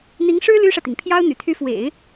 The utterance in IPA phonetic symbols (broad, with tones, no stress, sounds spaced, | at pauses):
n̪ i˧˥ ŋ ʂ ɻ̩˥ l y˥ ʂ ä˨ t̪ i˩ ŋ pʰ j ɑ˥ ʊ̯ n̪ y̰˨˩ t̪ʰ y˧˥ f w ḛ˨˩˦ ɪ̯